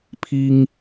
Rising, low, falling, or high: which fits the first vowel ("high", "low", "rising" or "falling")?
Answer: high